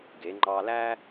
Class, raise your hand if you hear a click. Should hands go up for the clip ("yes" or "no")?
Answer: yes